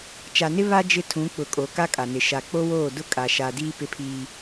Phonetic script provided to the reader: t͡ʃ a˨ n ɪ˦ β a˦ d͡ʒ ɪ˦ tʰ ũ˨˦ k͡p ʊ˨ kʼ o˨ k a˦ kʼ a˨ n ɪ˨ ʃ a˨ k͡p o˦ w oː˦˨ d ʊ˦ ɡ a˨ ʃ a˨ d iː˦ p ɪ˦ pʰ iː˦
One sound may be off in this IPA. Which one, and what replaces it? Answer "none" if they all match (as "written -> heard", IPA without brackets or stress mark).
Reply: ɡ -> kʼ